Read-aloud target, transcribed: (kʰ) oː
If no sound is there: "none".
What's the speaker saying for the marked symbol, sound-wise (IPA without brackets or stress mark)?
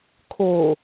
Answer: kʰ